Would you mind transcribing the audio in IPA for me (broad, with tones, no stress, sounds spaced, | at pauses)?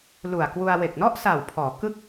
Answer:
l u˨˩ a̯ k w u˧ a̯ w e˨˩ k̚ n ɔ˥˩ ʔ s a˨˩ w pʰ ɔː˩˦ k ɯ˥˩ k̚